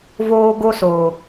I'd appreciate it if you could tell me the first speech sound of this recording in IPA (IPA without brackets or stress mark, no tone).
v